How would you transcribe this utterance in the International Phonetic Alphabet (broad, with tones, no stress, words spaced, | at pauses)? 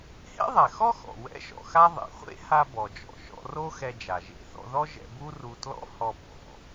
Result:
hḛ˥ðˤɛ˩xɔ˥ xɔ̰˩wɛ̰˥ʃɔ̰˧xa˥ ðˤḛ˩χʷḛ˥ha˧ bɔ˩d͡ʒɔ̰˩ʃɔ̰˧ro˥ xɛ˧d͡ʒa˩ ʒḛ˧θɔ̰˧ðɔ˥ ʒɛ̰˧bu˥ ru˧tlɔ̰˥ hɔ˧ bɔ̰˩